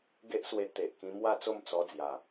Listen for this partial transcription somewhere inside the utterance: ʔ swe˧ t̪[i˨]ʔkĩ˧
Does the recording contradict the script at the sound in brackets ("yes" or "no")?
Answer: yes